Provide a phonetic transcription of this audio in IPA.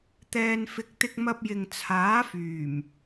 t̪ ɛː˧ n f ɪ˧ k̚ t̪ ɪ˧ k̚ m ɐ˧ p̚ j ɪ˨ ŋ t͡sʰ aː˨˥ f yː˨˩ m

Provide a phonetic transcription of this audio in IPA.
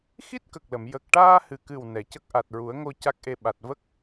x i˦˥ t̚ k ə˨˩ k̚ l ə˨˩˨ m j ə˨˩ k̚ ʈ aː˧ h ɨ˨˩ k ɨ˨˩ w n ɛ˨˩˨ c ə˦˥ k̚ ʔ a˨˩ t̚ ɹ u˨˩˦ ə̯ ŋ o˧ c a˦˥ k̚ ʔ e˧ ɓ a˨˩ t̚ v ə˦˥ k̚

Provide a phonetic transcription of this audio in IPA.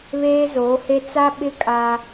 β eː˦ z oː˨˦ h e˦ t͡s a˦ ɓ ɪ˦ kʼ a˦

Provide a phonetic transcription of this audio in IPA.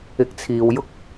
ɪ˧ k̚ t͡sʰ iː˨ w j ʊ˥ k̚

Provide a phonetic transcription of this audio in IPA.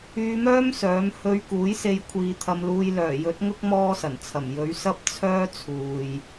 yː˧ m œː˥ m s œː˨˥ m h ɵ˧ ɥ k uː˨˥ j s e˧ j kʷʰ iː˨˧ t̪ʰ ɐ˧ m l uː˧ j l œː˨˩ j ɵ˨˥ t̚ ŋ ʊ˥ k̚ m ɔː˥ s ɐ˨˩ n t͡sʰ ɐ˨˩ m j ɵ˨˥ ɥ s ɐ˥ p̚ t͡sʰ œː˥ t͡sʰ uː˨ j

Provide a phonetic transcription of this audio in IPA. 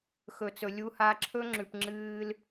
x ɵ˨ t͡s ɵ˨ lʲ u˧ h a˧ ǁʰ ɵ˦ ŋ͡ǁ ʉ˨ p ŋ͡ǁ ɨː˦ l

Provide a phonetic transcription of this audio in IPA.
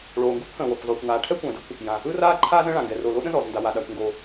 ɭ oː˩ ŋ ɡ ɯ˥ kʷ h ə̃ː˩ w ɔ˩ kʷ zˤ oː˩ kʷ ŋ aː˩ ʈʰ ɛ˥ kʷ ə̃ː˩ d ɯ˥ kʷ | j ã˩ | ɯ˥ r aː˥ ǃʰ aː˥ z ə̃˥ ɭ ã˩ ŋ ɡ ɛ˩ r o˩ l o˥ ɗ ə̃˥ z ɔ˩ z n d a˩ w a˩ ɗ a˩ kʷ ŋ ɡ oː˩

